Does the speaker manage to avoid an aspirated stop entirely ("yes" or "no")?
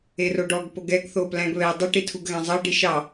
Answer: no